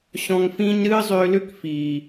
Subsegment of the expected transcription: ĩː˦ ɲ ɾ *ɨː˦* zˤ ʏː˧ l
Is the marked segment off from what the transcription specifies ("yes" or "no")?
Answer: no